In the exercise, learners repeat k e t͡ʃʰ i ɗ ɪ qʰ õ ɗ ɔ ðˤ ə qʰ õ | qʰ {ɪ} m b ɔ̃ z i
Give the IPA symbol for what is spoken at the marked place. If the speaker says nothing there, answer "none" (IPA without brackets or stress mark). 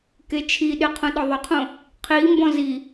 i